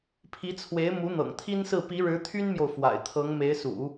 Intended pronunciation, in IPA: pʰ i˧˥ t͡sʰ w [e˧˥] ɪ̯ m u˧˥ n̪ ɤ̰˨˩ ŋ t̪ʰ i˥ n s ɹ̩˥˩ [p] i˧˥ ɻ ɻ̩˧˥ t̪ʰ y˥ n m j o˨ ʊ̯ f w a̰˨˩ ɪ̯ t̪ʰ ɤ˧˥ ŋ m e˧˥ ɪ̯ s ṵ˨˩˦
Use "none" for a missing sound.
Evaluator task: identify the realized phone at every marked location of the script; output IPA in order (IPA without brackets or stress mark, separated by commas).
e˧˥, p